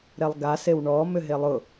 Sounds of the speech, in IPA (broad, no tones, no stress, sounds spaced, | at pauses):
ɾ ɛ lˠ ɡ a s e w ɳ ɔ m ʏ ɦ e lˠ ʊ